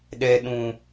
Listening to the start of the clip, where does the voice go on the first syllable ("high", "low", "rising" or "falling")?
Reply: high